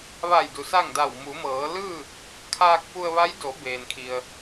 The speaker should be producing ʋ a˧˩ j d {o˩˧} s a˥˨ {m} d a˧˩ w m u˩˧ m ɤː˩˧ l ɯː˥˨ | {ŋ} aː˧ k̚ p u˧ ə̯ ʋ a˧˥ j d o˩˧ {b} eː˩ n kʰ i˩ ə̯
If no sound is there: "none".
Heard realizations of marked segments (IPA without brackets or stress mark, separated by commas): u˩˧, ŋ, kʰ, b